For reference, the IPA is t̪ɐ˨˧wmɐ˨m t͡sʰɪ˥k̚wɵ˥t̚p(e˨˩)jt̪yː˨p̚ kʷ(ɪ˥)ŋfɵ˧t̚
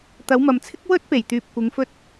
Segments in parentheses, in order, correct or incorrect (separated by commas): correct, incorrect